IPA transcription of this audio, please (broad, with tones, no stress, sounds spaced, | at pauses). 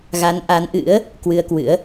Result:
ɣ a˨˦ n ʔ a˨˦ n ʔ ɨ̰˧˥ ə̯ | k w ɨ˧ ə̯ k w ɨ̰˧˥ ə̯